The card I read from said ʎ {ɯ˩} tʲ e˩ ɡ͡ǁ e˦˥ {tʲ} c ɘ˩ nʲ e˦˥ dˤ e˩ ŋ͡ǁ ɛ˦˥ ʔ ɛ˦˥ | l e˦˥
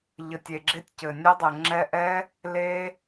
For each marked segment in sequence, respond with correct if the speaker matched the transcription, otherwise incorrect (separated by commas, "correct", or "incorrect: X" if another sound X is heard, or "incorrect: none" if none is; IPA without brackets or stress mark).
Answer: incorrect: ə˩, correct